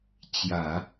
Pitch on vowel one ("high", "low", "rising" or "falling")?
low